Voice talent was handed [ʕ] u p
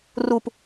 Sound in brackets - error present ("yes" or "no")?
yes